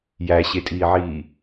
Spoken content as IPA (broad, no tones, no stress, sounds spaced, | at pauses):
j æ ɕ e tʼ iː ʕ iː